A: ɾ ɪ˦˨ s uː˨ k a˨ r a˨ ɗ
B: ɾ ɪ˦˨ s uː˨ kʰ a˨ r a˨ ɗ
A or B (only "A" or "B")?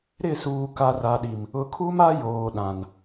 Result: A